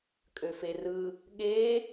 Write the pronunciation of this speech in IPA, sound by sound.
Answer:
kʼ ø f e r ɯ | ɠ e

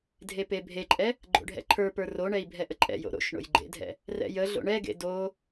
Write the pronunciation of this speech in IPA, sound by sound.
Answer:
dʱ e p e bʱ e ǃʼ ɛ | ɡ͡ǃ o̰ ɖʱ ɛ̰ ǃʰ ə˞ p ə˞ r o ɳ ɛ i̯ bʱ ɛ ʔ ə ǃʼ ɛ̰ j o̰ ɾ o̰ ʃ ɳ o̰ j ɡ͡ǃ ḛ dʱ ɛ̰ | r ɛ̰ j ə ɮ o̰ ɳ ɛ ɡ ḛ d o

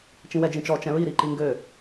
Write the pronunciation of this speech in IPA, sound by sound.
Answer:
t͡ʃ ĩ w ɛ d͡ʒ ĩ t͡ʃ ɔ t͡ʃ ɛ̃ ɹ i ɾ i ǃ i ŋ ɡ ø

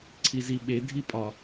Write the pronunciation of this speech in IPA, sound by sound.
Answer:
ǀʰ i z i ɓ e dʱ i pʼ ɒ

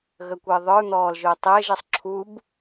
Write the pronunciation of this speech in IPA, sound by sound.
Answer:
ɣ ə kʷ ɘː ðˤ ə˞ n̪ ɔː l ʒ ʊː tˤ ɘː ʒ ə sˤ ǁʰ u b

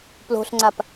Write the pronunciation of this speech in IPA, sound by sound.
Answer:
p l o̤ ɬ ŋ͡ǀ a p

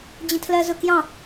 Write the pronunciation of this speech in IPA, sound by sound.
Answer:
d͡ʑ ə̃ tʰ l ɜ z ʊ k j ɑ̃

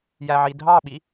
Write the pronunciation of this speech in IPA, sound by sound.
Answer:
j æ ʕ i dʱ ɑ ɓ i

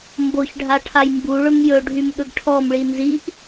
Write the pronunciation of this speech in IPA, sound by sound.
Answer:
m b o ç ɖʱ a ʈʰ a j m b u ɭ ɵ m j ɵ ɖʱ y m ɠ ɵ ɡ ʈʰ ɔ m ɭ i n z i ʔ

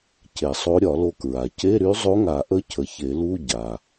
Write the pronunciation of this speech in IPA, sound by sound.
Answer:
c e˨˩˦ sˤ o˧˥ ɾʲ ɒ˨˩˦ l o˧ k ɹ a˩ c e˧˥˧ ɾ y˧˥ zˤ o˧˥ ŋ a˨˩˦ ʔ ə˧˥ cʰ ə˩˥ ç e˨˩˦ l u˧˥˧ ɟ a˩

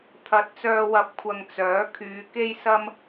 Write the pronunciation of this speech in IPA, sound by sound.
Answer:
t̪ʰ ɐ˨˥ t̚ t͡s œː˨ w ɐ˨˥ p̚ kʷʰ ɐ˨ ŋ t͡s œː˨˥ kʰ yː˨˧ k e˥ j s ɐ˥ m

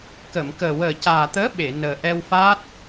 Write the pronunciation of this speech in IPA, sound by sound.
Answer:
k ə˨˩˨ m k əː˨˩ w əː˨˩ c aː˨˩ t̪ əː˧˥ ɓ e˨˩˨ n əː˨˩ ʔ ɛ˧ w f aː˦˥ t̚

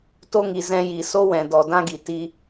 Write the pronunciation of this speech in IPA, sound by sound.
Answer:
t o˧ ŋ i˨ z ɛ̃˧ j i˨ s o˦ w ɛ̃˨ d ɔ˨ d ã˦ ɡ i˨ t i˧

